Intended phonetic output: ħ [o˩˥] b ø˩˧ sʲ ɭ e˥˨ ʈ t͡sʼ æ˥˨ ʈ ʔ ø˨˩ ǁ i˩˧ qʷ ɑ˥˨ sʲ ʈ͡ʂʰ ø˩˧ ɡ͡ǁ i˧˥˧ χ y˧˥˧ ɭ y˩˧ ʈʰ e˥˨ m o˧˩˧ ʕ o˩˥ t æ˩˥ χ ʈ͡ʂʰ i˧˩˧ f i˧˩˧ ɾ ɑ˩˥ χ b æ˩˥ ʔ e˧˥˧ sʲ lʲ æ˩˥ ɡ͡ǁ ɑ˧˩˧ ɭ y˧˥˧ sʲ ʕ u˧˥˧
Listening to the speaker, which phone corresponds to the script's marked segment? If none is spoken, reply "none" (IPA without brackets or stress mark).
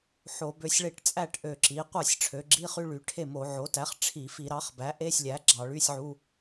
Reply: o˧˩˧